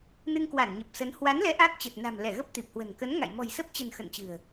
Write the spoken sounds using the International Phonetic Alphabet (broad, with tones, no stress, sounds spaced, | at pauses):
n ɨ˧ ŋ k w a˧˩ n ɲ ə˨˩ p̚ s ə˨˦ n h w a˨˦ n l ɛ˨˦ ʔ a˦˥ k̚ t͡ɕ ə˨˩ t̚ n a̤˨˩ m l ɛ˧˩ ɣ ə˦˥ p̚ t̪ i˨˩ p̚ h w ə̤˨˩ n k ə˨˦ n ŋ a̰˧˨ j m ɔ̤˨˩ j s ə˦˥ p̚ t͡ɕ ə̤˨˩ n x ə̰˧˨ n t͡ɕ ɨ̤˨˩ ə̯